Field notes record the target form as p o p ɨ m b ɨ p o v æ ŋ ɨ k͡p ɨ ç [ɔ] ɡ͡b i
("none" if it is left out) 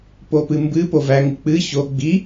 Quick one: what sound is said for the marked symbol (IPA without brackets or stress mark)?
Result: o